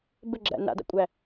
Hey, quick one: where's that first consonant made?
lips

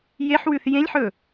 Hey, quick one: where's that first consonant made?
palate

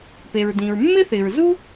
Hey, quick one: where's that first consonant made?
lips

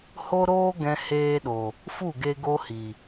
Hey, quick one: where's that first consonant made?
throat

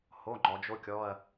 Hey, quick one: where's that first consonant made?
throat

